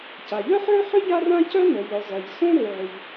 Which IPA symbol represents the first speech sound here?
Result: c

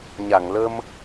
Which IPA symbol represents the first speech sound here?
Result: ɲ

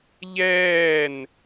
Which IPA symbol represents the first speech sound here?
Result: ʎ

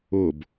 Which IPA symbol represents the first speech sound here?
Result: ʊ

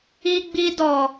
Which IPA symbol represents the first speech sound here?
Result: i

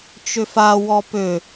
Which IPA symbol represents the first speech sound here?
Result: t͡ʃ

